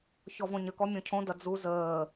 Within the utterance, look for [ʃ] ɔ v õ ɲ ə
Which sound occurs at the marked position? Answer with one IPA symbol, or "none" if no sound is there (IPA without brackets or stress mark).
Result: ç